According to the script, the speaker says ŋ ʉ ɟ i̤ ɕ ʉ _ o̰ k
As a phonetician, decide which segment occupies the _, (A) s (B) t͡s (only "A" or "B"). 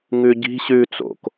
B